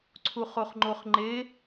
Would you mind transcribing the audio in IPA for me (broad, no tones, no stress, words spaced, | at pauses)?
ǀʰuχoχŋ͡ǃoχŋ͡ǃe